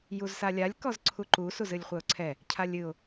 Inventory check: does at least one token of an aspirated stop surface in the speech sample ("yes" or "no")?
yes